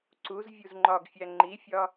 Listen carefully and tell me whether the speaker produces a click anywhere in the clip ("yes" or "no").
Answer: yes